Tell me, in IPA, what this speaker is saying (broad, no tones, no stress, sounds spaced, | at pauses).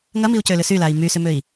ŋ ɐ m i u̯ c ø l ʏ s y l a i̯ m y s ʏ m ø i̯